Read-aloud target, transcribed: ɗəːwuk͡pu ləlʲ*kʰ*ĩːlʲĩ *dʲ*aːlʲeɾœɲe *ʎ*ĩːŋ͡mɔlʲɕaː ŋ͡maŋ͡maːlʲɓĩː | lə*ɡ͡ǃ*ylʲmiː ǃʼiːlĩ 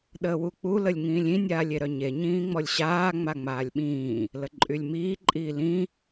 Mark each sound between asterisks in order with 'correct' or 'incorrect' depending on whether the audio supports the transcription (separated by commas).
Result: incorrect, incorrect, incorrect, incorrect